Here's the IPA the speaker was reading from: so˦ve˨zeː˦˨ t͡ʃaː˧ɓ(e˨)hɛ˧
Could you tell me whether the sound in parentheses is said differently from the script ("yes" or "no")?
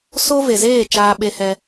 yes